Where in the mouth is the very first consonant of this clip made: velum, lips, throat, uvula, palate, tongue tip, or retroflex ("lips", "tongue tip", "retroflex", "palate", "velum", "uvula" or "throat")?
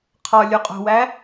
uvula